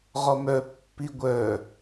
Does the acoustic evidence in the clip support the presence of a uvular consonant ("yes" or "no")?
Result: yes